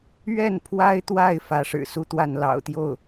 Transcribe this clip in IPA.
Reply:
ɥ ɛ˥˩ n pʰ w a˥ ɪ̯ t̪ w a˥˩ ɪ̯ f ä˧˥ ʂ ɻ̩˨˩ s u˥˧ t̪ w a˥˩ n l ɑ̰˨˩ ʊ̯ t̪ j o˥˩ ʊ̯

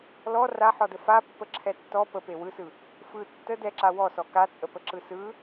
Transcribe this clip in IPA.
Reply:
l ɔ r a ħ ɔ d ə f a pː ə ǁʰ ɛ tː ɔ p ə p e w ɯ s ɯ | f ɯ tː ə d ɛ ǁ a w ɔ s ɔ k a t͡sʼ ə p ə ǁ ɯ s ɯ

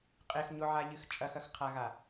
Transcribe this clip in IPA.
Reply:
qʼ e x ɲ o ʕ a ʎ ɨ x t͡ʃʼ ɐ x ɐ x qʰ a ɣ a

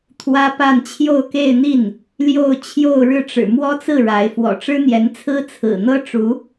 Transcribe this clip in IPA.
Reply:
t̪ʰ w ä˥ p a˥˧ n t͡ɕʰ j o˥˧ ʊ̯ k e˥˧ ɪ̯ n̪ i˥˩ n | l j o˥˧ ʊ̯ t͡ɕʰ j o˥˧ ʊ̯ ɻ ɻ̩˥˩ ʈ͡ʂ ɻ̩˨˩ m w ɔ˥ t͡s ɹ̩˥˩ ɻ a˧˥ ɪ̯ f w ɔ̰˨˩ ʈ͡ʂ ɻ̩˥ n̪ j ɛ˧˥ n t͡sʰ ɹ̩˥ t͡sʰ ɹ̩˨˩ n̪ ɤ˥ ʈ͡ʂ u˧˥

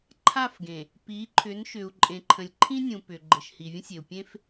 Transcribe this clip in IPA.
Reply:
ǃʰ a˦˨ f ɡ ẽ˨ | p i˨˦ ǃʰ ʏ˨˦ n ʃ ʏ˨ u̯ ǃʼ ẽ˨ ǃʰ ə̃˨ lʲ ǃʰ ĩ˦ nʲ ũ˨ p ʏ˨ ɡ͡ǃ ɘ˨ ʃ h i˨ vʲ ə̃˦ sʲ e˨ u̯ pʲ ẽ˦ f

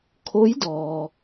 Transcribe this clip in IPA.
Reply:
kʰ o˧˥ j d ɔː˩

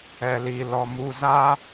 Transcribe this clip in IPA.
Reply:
ɛ˨ l i˨ l ɔ˨ m u˨ z a˦

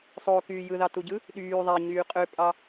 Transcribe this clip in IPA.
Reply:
sˤ o k yː j ɯ ð ɑ t u ɟ ɯ | ɗ yː ðˤ æ ɲ yː qʼ ø pʼ ɑ

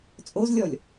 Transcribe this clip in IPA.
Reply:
t͡sʼ o z lʲ ɔ lʲ

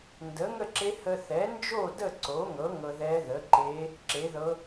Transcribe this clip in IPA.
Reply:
n d ə˩˥ ŋ ə˥˨ ǁ e˧˥ h ə˧ θ ɛ˩˥ n d͡ʒ o˥˨ d ə˥˨ ǀ o˩˥ ŋ ɤ˩˥ ŋ ɤ˧ ð ɛ˧˥ ð ə˩˥ ǃ e˧˥ | ǁ e˩˥ ð ɤ˧˥

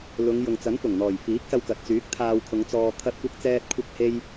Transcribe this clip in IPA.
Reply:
l ʊ˨˧ ŋ j ʊ˨ ŋ t͡s ɐ˨˥ n f ʊ˨˩ ŋ n̪ ɔː˨˩ j f iː˨˥ k̚ s ɐ˧ w k ɐ˨ t̚ t͡s yː˨˥ k̚ t̪ʰ aː˧ w kʰ ʊ˨˧ ŋ t͡s ɔː˧ t̪ʰ ɐ˥ t̚ kʷ ɐ˥ k̚ t͡s ɛː˥ t̚ kʷʰ ɐ˥ k̚ h e˥ j

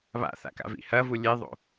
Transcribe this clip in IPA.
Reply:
β a̰ θ a̰ k a̰ v ḭ h ɐ v u lʲ e ðˤ o̰

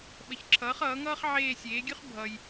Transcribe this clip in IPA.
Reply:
ɓ ə˩˥ ç ǁʰ ʌː˩˥ χ ʌː˩˥ ŋ ʌː˥ χ ʕ eː˦˨ sʲ eː˩˥ ɡʲ ʉ˥ χ bʱ ʌ˨ j

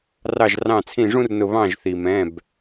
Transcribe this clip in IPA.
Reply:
r ɑ˧˩ ʒ r ɑ̃˧˩ t͡sʰ ĩ˧˩ ʐ ũ˦ r n ʊ˧˩ β ɑ̃˧˩ ʒ θ i˩ m ɛ̃˩˧˩ b

